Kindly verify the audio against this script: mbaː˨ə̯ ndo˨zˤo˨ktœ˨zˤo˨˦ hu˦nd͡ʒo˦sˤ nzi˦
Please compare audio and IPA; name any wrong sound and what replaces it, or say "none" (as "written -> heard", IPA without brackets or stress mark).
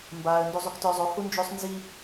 none